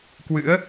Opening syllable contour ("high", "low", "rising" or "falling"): rising